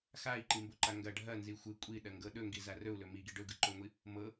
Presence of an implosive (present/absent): present